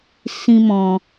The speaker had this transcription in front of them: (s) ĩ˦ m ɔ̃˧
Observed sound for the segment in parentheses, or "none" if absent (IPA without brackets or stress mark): s